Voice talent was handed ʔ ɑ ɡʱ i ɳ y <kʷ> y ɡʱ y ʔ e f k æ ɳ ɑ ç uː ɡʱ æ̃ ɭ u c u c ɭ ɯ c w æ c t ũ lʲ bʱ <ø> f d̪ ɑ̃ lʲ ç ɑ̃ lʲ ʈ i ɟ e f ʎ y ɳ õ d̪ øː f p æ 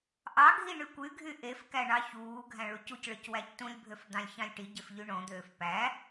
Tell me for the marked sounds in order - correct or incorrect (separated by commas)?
correct, correct